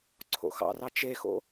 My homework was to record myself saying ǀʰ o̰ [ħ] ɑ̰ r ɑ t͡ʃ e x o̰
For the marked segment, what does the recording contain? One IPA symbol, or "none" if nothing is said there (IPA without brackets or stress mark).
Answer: x